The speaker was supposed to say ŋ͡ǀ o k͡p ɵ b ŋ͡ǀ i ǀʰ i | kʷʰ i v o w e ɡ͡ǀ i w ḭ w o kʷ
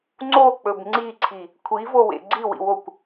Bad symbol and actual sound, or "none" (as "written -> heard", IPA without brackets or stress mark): e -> ḛ